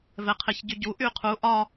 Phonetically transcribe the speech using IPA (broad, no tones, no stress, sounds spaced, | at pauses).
v ɛ qʰ e ç ɟ y ɟ u ʔ y qʰ u ʔ ɒ